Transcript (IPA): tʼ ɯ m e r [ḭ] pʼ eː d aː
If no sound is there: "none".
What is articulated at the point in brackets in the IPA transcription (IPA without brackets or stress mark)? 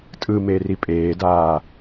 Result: i